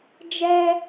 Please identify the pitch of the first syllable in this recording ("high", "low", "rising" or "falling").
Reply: high